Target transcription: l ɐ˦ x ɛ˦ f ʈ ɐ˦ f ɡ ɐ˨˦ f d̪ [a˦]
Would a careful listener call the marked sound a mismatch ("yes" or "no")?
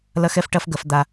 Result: no